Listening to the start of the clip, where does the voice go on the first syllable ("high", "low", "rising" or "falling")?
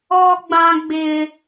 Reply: high